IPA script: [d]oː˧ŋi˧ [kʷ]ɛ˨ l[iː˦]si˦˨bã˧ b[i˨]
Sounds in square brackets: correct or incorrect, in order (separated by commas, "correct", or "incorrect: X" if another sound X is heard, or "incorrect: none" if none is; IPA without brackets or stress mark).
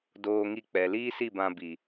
correct, incorrect: k͡p, correct, correct